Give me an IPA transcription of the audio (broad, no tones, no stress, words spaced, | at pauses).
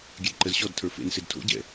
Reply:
ɡʲɛdǃəzɕɔd tʰə˞fḛn sedtʰo̰ ɟɛ̰